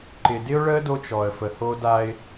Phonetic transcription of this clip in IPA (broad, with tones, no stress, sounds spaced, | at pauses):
ǃ ɪ˨ d ɪ˦ ʊ̯ ɭ ə˦ d o˦ t͡ʃ ɔ˨ ə̯ f ə˨ h o˦ d a˦ ɪ̯